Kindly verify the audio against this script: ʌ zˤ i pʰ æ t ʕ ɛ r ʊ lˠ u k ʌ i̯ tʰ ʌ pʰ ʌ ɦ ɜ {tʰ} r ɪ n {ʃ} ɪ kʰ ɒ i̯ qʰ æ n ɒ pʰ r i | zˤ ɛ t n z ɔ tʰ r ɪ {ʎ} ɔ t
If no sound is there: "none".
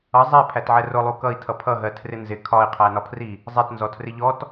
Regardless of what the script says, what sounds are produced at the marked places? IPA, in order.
tʰ, z, ʎ

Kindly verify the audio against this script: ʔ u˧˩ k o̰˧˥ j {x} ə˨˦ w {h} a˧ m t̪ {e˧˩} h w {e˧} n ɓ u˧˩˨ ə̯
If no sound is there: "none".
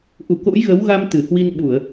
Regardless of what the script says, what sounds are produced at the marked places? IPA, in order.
ɣ, ɣ, ɨ˧˩, i˧

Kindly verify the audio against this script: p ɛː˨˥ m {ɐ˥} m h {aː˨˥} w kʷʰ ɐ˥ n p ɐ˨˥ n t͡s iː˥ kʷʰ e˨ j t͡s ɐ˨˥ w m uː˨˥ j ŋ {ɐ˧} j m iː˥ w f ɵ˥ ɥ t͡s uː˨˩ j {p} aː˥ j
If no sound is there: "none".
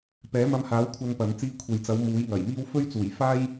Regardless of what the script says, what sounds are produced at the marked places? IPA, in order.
ɐ˧, aː˨˥, ɐ˨˩, f

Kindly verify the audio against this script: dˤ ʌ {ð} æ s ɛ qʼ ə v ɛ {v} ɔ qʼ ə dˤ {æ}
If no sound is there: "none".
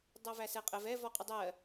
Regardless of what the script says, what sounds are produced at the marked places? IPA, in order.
v, v, ɜ

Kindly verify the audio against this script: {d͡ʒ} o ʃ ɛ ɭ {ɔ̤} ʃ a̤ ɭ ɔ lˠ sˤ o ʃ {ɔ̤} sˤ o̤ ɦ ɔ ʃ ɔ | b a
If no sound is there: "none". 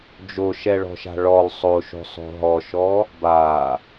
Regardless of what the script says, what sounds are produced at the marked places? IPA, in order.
d͡ʒ, ɔ̤, o̤

